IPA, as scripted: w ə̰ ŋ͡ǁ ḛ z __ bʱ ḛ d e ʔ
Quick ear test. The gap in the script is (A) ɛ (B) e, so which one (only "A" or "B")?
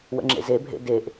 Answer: B